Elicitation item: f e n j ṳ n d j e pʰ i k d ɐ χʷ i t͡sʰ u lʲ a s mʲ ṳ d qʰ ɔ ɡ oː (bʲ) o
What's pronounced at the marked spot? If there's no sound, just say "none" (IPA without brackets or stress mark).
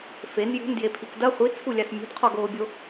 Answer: bʲ